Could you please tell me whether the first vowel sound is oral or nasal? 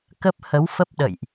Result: oral